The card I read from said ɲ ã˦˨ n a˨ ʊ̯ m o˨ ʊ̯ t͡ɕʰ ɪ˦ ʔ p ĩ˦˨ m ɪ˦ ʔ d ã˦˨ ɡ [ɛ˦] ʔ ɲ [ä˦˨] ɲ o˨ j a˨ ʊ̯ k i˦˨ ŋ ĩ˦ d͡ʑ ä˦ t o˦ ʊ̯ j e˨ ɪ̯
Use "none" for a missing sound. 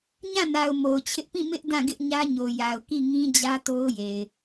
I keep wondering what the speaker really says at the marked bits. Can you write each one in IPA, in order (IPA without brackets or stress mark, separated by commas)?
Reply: ɪ˦, ä˦